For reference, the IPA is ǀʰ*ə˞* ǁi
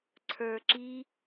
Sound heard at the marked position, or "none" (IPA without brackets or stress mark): ə˞